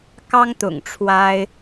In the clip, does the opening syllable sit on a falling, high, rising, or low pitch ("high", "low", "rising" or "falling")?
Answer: high